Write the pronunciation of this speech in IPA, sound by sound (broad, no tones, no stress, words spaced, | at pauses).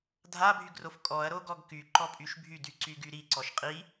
dʱabʱyɡrof kʼɔɐ̯ɾoɡɔɡ kyǃɔpʼyʃ bʱydyǀyɡy ɾiǀɔʃ qʼi